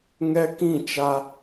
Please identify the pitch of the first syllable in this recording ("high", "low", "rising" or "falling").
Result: high